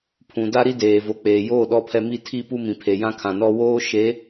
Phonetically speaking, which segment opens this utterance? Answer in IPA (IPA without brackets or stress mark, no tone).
pʰ